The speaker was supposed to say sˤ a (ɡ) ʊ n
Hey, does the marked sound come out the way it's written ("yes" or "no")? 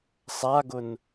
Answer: yes